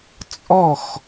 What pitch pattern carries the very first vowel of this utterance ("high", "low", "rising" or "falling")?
falling